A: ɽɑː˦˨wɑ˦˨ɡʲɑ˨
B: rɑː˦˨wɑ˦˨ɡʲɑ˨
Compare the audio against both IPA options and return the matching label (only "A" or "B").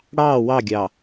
A